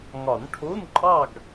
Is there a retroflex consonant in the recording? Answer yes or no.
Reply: yes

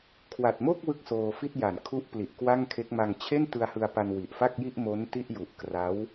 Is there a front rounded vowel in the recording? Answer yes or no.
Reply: no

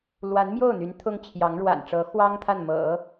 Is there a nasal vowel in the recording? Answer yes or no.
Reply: no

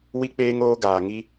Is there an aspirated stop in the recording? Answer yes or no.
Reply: no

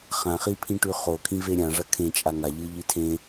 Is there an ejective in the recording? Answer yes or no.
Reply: yes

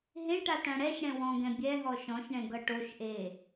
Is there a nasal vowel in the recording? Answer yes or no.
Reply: yes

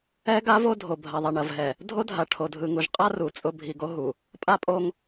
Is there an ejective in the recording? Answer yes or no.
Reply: yes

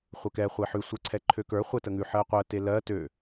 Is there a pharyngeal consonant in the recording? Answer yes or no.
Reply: yes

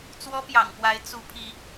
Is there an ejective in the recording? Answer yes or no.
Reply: no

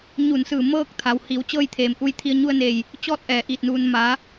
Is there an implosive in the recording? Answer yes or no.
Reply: no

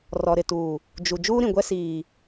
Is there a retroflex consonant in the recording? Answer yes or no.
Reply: no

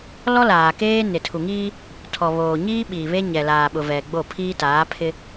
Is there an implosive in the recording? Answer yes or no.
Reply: yes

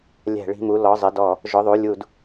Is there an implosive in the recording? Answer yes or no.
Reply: no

